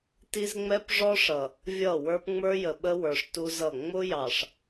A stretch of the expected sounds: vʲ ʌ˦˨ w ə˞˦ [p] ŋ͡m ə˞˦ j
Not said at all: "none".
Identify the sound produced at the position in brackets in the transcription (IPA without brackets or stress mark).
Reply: p